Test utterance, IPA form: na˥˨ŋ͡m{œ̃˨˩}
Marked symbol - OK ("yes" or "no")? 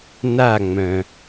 yes